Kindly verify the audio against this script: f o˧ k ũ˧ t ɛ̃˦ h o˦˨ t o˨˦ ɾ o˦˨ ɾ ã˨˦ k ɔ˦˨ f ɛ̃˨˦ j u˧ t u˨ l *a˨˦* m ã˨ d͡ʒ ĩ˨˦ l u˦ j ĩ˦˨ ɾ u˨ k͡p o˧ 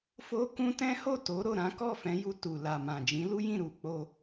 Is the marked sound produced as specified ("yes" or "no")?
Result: no